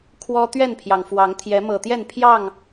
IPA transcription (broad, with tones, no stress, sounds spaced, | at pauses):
kʰ w ɔ˦ t̪ ɥ ɛ˥˨ n pʰ j ɑ˩ ŋ f w ɑ˨˦ ŋ t̪ʰ j ɛ˨˦ m ɤ˨˩ t̪ j ɛ˥˨ n pʰ j ɑ˥˨ ŋ